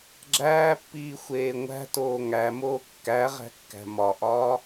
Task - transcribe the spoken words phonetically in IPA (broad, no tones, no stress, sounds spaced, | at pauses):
ɡ͡ǁ æː pː iː xʷ eː ŋʷ æ̤ t oː ŋ æ m oː kː æ ʁ æ̤ kː æ̤ m ɒ ʔ ɒː